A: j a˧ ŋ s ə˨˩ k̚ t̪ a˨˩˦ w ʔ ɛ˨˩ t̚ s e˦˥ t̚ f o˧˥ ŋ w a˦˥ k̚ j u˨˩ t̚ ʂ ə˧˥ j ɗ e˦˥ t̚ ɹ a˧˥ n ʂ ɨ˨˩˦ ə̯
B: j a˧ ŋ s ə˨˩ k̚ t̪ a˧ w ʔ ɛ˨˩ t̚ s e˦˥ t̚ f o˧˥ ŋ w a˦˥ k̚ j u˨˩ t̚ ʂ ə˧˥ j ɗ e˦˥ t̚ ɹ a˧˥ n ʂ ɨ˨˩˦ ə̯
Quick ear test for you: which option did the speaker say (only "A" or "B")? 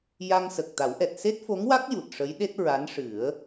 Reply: A